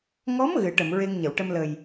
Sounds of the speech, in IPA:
ŋɔ˧˥m ɣɨ˨˩˦ʈə˨˩˨m ɹe˧ŋɲə˨˩˨wʈə˧m lə˨˩j

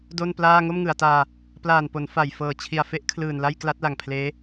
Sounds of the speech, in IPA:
do˥˩nplaː˥˩ ŋo˥˩mŋɯ˩˦a̯taː˧ | plaː˨˩npo˩˦n fa˨˩j fɤː˨˩t͡ɕʰi˨˩a̯fe˦˥ʔkʰlɯː˨˩n la˥˩jkla˦˥t̚la˨˩ŋpʰleː˦˥

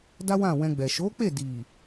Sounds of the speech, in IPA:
da˦wã˦˨ wɛ̃˧ɡ͡bɛ˨ ʃo˨˦k͡pe˦˨di˨

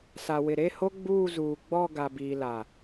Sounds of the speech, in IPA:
sa˨wɪ˨ ɾe˦˨ho˦ ɡ͡buː˦˨zuː˨ɡ͡bɔ˦˨ ɡa˨biː˨la˨

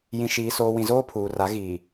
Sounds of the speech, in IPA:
jĩ˨ʃiː˨ soː˨wĩ˨zoː˦ pʰuː˨ra˨˦ ɣiː˨

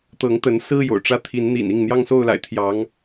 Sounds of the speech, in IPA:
t̪ɤ˨˦ŋt̪ə˨˦nsɹ̩˦ jo̰˨˩ʊ̯ʈ͡ʂä˦t̪ʰi˨˦nn̪ḭ˨˩n i˥˨ŋn̪jɑ˦ŋso˦ʊ̯ la̰˨˩ɪ̯ t̪ʰjɑ˨˦ŋ

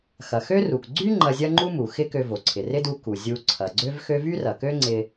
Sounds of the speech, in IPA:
xɐ˩xø˥ru˩k ɡ͡ǀy˥ ŋ͡ǃɐ˧zʲɐ˥ŋ͡ǃu˥mu˩ xɪ˥kø˧vo˩ ǀʰɪ˩rɪ˥du˧ ku˩ zʲu˧ ǀʰɐ˩ɡ͡ǀø˥vxø˥ vy˥rɐ˩kø˥ ŋ͡ǀɪ˧

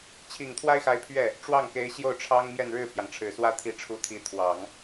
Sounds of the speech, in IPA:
t͡ɕʰi˨˩ŋt̪ʰwa˥ɪ̯xa˧˥ɪ̯ pʰɥɛ˥˩ | ʈ͡ʂwɑ˥˩ŋke˧˥ɪ̯ ɕjo˥˩ʊ̯ʈ͡ʂʰɑ˥ŋ mjɛ˥˧nɻɻ̩˥˩pʰjɑ˩ŋ ʈ͡ʂʰɻ̩˨˩swä˥ t̪ʰi˧˥ʈ͡ʂʰu˧˥t̪ʰi˧˥ t̪ʰwɑ˨˩˦ŋ

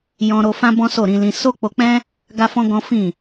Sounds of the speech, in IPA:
jɔ̃˧ ɾo˧fã˦ bɔ̃˦so˦˨ɾĩ˨˦lĩ˧ so˦k͡po˧k͡pɛ̃˦ | ɡa˦fɔ̃˦ɡɔ̃˦ fĩ˦˨

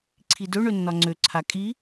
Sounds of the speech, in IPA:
ǀʰidø ɳønːɒŋ͡ǀø ǀʰakʼi

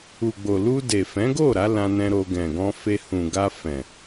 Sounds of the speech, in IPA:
u˨ɡ͡bo˨ lu˧de˨fɛ̃˨˦ɡo˦˨ ɾa˨˦lã˧nɛ̃˧ɾo˧ ɡɛ̃˨ɡɔ̃˧fe˧ hũ˨ɡa˧fɛ̃˨

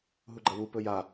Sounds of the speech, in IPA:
ɦuɡ͡ǃɐwu pɵja

